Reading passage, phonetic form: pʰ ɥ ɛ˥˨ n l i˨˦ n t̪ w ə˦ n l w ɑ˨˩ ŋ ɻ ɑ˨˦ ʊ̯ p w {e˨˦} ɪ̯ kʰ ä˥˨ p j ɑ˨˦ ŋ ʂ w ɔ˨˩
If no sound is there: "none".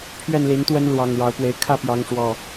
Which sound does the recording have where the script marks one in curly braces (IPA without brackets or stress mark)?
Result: e˨˦